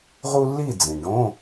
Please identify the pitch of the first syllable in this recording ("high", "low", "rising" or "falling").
high